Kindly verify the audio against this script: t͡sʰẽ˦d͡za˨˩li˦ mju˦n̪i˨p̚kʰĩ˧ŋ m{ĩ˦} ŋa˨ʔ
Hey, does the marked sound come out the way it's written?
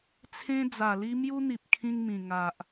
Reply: no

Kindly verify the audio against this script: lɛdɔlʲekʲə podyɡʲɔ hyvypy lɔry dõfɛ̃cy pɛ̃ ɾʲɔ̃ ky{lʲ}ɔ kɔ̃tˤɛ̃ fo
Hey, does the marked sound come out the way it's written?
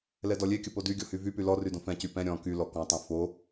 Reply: no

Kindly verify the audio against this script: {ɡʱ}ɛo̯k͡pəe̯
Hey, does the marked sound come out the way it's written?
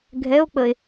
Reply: yes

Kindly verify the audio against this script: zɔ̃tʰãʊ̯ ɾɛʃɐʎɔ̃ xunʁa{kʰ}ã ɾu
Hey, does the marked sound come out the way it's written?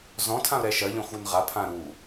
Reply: no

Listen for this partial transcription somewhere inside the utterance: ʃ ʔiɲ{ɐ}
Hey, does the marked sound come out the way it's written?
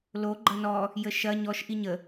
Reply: no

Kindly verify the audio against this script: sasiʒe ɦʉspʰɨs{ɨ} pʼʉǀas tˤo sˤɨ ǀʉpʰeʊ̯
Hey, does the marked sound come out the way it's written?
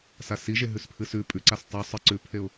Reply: no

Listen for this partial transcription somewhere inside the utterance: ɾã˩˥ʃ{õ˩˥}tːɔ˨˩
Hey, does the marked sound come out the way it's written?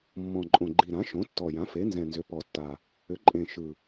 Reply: yes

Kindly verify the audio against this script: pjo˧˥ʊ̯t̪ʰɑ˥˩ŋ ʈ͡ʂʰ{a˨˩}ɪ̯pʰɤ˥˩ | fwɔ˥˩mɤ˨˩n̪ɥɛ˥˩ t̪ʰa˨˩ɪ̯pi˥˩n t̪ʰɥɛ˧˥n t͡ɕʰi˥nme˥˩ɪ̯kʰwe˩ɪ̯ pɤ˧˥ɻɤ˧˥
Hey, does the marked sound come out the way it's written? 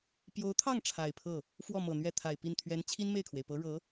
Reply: yes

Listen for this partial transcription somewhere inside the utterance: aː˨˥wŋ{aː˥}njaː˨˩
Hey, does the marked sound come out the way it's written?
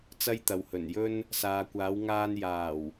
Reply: no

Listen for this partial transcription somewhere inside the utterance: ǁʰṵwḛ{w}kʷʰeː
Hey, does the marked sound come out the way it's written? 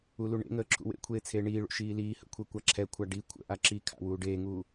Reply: no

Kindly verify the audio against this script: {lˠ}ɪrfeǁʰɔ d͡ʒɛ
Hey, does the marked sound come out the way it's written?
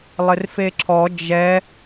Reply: yes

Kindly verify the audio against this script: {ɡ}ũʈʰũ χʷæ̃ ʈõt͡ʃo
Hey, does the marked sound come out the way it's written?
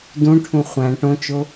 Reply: no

